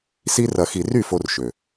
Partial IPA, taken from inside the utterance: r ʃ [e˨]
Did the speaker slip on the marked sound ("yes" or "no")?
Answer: yes